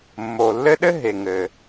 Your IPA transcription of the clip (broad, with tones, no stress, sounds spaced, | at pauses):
mː o˩ lː ɘ˦ ɗ ɘ˥ ɦ e˩ ŋ ɘ˩